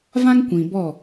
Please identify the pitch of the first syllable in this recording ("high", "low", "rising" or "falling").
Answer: high